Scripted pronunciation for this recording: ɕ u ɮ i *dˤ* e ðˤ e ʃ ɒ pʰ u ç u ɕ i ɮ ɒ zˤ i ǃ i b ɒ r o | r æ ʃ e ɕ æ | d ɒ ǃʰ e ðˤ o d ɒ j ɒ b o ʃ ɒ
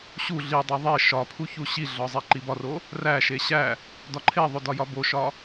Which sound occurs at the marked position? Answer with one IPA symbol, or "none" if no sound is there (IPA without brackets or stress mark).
dˤ